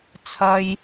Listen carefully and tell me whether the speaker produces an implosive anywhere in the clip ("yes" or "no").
no